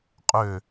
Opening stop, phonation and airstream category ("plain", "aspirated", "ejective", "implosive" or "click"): ejective